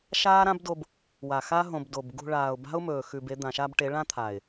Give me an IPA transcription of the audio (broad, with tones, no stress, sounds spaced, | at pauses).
ʃ aː˦ ɾ ã˦ b d o˧ b | w a˨ x a˦ ɦ õ˧ b d o˨ b ɡ ṳ˧ ɭ aː˨ ʊ̯ b a̤˦ ʊ̯ m ɵː˨ x ʉ˧ b e˦ d̪ ã˨ ʃ a˧ b ʈ e˨˦ ɭ ã˦ t̪ʰ a˨ ɪ̯